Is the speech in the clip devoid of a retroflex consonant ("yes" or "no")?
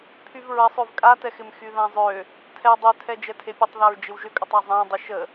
yes